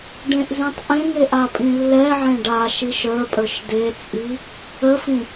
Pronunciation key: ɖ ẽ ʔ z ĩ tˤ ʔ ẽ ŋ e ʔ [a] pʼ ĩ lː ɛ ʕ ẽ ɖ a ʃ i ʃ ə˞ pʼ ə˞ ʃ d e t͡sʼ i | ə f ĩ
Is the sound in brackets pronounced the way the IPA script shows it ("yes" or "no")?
yes